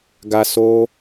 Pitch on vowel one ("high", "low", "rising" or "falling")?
high